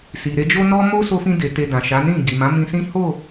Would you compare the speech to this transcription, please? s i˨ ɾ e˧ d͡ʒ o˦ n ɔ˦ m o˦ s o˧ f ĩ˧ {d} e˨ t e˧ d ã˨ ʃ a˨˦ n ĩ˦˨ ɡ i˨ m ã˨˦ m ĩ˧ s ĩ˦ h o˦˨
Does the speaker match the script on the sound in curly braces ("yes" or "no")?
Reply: yes